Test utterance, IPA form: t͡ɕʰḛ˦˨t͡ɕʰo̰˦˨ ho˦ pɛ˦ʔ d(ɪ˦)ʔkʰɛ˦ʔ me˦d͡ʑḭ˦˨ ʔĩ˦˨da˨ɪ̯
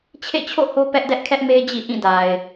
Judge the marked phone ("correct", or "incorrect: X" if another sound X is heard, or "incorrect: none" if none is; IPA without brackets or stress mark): incorrect: ɛ˦